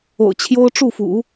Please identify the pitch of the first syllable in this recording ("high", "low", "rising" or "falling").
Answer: low